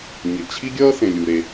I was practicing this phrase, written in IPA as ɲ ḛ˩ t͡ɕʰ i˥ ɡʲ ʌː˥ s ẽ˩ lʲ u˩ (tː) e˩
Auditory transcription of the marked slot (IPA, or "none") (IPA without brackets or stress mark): ɾ